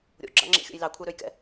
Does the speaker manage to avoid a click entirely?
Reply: no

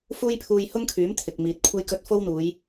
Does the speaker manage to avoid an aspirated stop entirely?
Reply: no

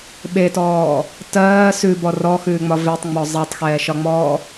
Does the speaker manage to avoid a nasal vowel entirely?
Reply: yes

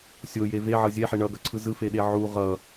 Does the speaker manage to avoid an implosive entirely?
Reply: no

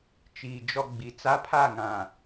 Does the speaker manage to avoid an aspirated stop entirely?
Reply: no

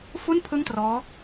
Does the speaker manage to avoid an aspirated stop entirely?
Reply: no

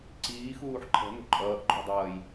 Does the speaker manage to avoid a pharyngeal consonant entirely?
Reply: no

